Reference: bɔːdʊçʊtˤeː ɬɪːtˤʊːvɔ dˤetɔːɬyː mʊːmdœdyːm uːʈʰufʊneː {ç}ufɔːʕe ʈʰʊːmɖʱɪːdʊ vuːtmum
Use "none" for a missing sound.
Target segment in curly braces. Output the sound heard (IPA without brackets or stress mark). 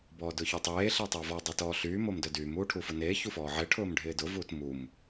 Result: ç